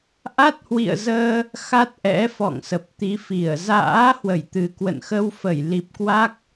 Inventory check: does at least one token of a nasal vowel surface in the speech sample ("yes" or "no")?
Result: no